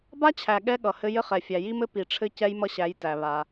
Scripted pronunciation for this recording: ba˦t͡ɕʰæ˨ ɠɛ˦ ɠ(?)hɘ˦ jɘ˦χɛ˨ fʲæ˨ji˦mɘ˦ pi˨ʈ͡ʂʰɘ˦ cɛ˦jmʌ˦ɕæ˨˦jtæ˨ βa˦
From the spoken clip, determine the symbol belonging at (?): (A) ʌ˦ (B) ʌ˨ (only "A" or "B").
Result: B